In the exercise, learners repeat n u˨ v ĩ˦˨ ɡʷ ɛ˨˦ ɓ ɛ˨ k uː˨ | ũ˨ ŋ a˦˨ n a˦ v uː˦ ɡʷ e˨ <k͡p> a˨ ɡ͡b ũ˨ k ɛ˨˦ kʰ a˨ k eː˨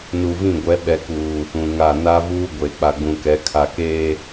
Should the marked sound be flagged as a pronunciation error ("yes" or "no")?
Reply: no